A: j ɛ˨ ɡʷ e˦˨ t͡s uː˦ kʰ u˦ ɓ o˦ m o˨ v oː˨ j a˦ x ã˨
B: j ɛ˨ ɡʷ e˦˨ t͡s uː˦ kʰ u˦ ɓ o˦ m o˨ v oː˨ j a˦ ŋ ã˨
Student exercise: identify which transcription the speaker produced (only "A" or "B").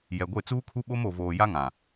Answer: B